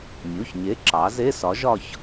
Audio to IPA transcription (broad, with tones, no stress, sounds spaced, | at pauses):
mʲ u˩˧˩ ç ɲ e˨˥ ǁ ɑ˩˧ z e˧˥˧ s ɒ˨˥ ʒ ɒ˥˧ ç